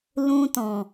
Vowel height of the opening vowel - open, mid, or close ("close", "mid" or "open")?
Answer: close